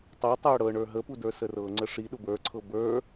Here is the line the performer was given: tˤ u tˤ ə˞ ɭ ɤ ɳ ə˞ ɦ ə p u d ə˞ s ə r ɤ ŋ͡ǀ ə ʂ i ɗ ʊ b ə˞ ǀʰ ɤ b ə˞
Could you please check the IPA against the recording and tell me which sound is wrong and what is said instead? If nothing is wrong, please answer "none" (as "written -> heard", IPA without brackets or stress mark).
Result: ɭ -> ɽ